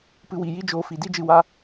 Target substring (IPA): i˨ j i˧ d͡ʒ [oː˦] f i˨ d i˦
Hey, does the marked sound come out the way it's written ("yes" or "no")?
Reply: no